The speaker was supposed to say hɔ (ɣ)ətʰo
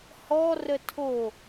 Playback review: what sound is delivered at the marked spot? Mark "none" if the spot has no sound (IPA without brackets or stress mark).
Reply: r